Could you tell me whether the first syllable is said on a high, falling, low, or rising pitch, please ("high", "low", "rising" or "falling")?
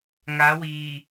rising